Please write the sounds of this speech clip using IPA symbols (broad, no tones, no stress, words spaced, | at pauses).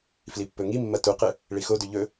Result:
flipːɵŋimːɐ tuqɨ | ɭixodʉ ʎɵ